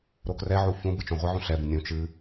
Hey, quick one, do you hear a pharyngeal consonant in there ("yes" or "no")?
yes